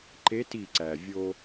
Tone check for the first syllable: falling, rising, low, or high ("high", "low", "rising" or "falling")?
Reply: rising